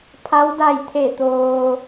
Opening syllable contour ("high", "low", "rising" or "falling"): rising